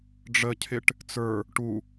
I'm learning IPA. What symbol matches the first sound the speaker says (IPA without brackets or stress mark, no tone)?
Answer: ɖ͡ʐ